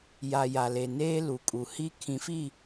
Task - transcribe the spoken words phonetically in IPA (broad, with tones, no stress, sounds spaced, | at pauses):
j a˨ j a˨ l e˨ n eː˦ l u˨ kʼ u˨ h i˦ kʰ ĩ˨ f i˦˨